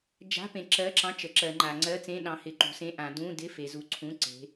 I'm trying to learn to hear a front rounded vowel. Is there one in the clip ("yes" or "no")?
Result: no